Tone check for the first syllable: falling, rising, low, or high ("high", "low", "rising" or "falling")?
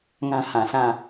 high